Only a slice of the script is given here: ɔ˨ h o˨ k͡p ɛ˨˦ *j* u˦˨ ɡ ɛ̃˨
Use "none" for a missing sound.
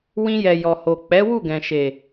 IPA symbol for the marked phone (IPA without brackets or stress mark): w